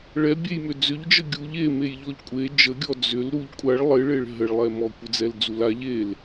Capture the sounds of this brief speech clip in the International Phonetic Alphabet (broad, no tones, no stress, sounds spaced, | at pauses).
ɭ ɛ bʲ e j m ʏ d͡z ʏ ʎ d͡ʒ ə ɡʲ u ʎ e m e j ʎ ɔ ʎ kʷʼ e d͡ʒ ə ɡʲ ɔ d͡z ʏ l ɾ u ʎ kʷʼ a ɭ lˠ ɪ ɭ e ɭ ɦ ə ɭ lˠ ɛ m ɔ kʷ ɪ d͡z ɛ l d͡z u l a ʎ e l